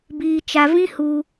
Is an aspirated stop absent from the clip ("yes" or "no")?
yes